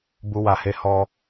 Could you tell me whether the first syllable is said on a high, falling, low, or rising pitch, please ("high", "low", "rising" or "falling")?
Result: low